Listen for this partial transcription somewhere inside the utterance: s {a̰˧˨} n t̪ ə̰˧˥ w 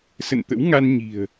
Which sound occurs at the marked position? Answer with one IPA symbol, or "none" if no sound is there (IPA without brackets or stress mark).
ə̰˧˨